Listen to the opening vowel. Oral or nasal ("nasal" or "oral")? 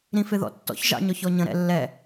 nasal